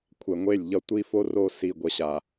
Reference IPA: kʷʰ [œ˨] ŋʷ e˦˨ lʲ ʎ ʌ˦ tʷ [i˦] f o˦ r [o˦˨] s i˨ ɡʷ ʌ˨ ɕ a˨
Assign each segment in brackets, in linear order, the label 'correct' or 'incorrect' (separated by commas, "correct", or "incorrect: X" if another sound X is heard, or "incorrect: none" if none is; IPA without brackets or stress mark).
incorrect: ɛ˨, correct, correct